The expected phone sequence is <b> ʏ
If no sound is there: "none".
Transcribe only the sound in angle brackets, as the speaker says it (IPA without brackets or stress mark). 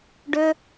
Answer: ɖ